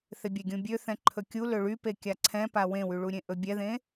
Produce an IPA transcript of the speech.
θ e bʲ ɛ ɡʲ ũ bʲ ø θ ɛ̃ ǃʰ ɵ kʲ u l ø ɭ y p e kʲ a ǀʰ ɛ̃ p a w ẽ w y ɭ u ɾʲ ẽ ʔ ɵ bʲ ɛ ð ẽ

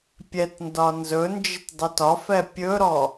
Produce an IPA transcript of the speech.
pʲ ɛ t n d ɒ n z ɵ n d͡ʒ ɪ t dˤ ɵ t ɒ f ɛ pʲ ɵ ɾ ɔ

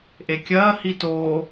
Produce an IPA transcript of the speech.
ʔ e kʲ ɐː h i t oː

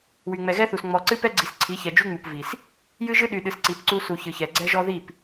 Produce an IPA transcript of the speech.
w y˨ ŋ͡m ɛ˨ ɣ ɛ˦ θ u˨ s ŋ͡m ɔ˨ ǀ ɨ˦ p ɛ˦ ɡ͡ǀ i˨ s ǀʰ i˨˦ ç ɛ˨ d͡ʒ y˦ ŋ͡m u˨ p v i˨ s | j ɨ˦ ʒ ɨ˦ ɗ y˨ ɗ ɨ˨ s ǀ i˨ p ǀ u˦ s u˨ ç ɨ˨ ç ɛ˨ ɡ͡ǀ ɛ˦ ʒ ɔ˦ ð i˦˨ p

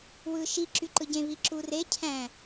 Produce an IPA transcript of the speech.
w ɯ ʃ i ǁ y ǃ ɯ ɟ ẽ β i ǁ u r e cʰ æ̃

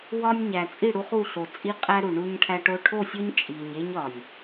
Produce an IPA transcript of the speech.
w ɒ˦ nʲ ɲ æ˨ t͡sʼ i˦˨ ɽ u˦ χ u˦˨ ɬ o˨ t͡sʼ i˦ qʼ æ˦ ɾ u˨ ɳ u˦ ɲ ʈʰ æ˦ ʈ o˦ ʈʰ o˦˨ sʲ o˦ ɲ t͡ʃʼ i˨ ɲ e˦ ɲ ɒ˨ nʲ

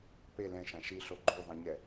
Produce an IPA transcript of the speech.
p e l ɛ̃ ʃ ã ʃ i ɬ o ɡ͡ǃ u ðˤ ɛ̃ ɲ ɛ

